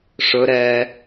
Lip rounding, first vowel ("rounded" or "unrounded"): rounded